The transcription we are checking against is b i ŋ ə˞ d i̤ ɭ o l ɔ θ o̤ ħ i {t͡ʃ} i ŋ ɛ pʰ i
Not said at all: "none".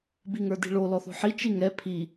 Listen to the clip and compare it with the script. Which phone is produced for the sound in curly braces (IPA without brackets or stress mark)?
t͡ʃ